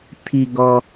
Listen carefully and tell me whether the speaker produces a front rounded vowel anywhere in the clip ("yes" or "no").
no